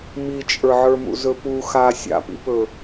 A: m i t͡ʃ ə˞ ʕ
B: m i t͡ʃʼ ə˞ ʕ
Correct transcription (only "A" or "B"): B